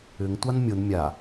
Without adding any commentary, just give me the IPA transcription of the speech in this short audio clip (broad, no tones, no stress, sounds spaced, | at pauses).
ʏ ŋ tʷ a n mʲ ʊ n mʲ a